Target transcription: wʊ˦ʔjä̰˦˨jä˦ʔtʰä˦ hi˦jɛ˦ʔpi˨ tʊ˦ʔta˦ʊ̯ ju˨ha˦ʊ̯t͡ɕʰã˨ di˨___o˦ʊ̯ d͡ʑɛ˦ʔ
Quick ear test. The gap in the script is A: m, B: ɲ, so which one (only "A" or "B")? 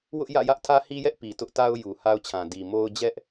A